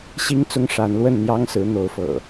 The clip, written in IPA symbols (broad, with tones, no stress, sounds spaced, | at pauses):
ɕ i˦ ŋ t͡s ʊ˦ ŋ ʂ a˨˦ n l w ə˥˨ n n̪ j ɑ˦ ŋ s ɹ̩˨˦ n̪ o˨˦ ʊ̯ f ɤ̰˨˩